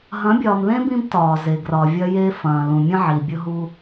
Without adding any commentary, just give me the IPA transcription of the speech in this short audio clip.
ɦɐ̃˨˦bʲɒː˨mðẽ˦ bĩ˦btɒː˨ ze˨ ɡrɒ˨vʲɐ˦ je˦fɐ̃ː˨lũ˨ mʲə̃˦ʕi˨bʲʊ˦ ɦu˦

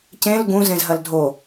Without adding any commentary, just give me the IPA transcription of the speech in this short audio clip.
cẽl ɡũ zẽzɦɐldʱo

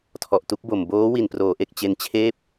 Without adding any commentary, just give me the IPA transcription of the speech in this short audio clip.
tʰɔ˨˩ʔtu˦˥k̚bo˨˩m boː˦˥ wi˨˩nproː˩˦ʔe˨˩k̚ t͡ɕe˧nt͡ɕʰeː˥˩p̚

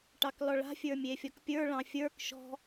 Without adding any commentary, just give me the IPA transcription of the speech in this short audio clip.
ʈɑklɔɭa̤ fʲə˞mʲefʲɔkpʲə˞ ɭɑ̃fʲə˞k ʃɔ̤

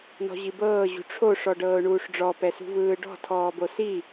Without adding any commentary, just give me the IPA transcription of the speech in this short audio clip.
nɔ̤ʑibɤː ʑṳʈ͡ʂʰo ʂɔɖɤːʊ̯ɳuːʂɖ͡ʐɔ pɛsṳvɯːɖɔ̤ tʰɔːbosi

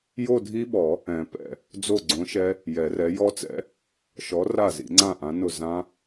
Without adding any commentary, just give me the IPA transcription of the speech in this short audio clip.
jo˥˧dʱi˦˥ɓɔ˨˩˦ | ɛ̃˨˩˦pɛ̰˥˩ | d͡zo˥˩ɡ͡ǀõ˨˥ʃɛ˦˥ | jɛ˨˩˦rɛ˨˥ jɔ˦˥t͡sɛ̰˦˥ | ʃɔ˨˥ ra˥˩zḭ˨˩˦ŋ͡ǀã˥˩ ʔã˨˥nʊ˥˩ zã˦˥

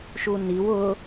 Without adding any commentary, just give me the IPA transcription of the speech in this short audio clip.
ʃuniw ʊ

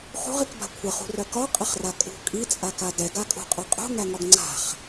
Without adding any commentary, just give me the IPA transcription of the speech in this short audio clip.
χṳʁikba̤ kʷʰəχṳrœ kɒqʼəχra kʼṳ kʼit͡sʼaka dɛɡakʼṳqʼœ qʼṳŋæŋɒɡ ŋ͡ǀa̤χ

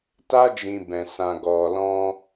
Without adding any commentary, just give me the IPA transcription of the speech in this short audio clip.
ta˦ d͡ʒĩ˧bɛ̃˨ sã˨ɡɔ˨lɔ̃˧

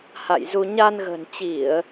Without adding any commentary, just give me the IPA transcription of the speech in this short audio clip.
ha̰˧˨jzu˧ ɲa˧nɣə̤˨˩nt͡ɕi˧˩˨ə̯

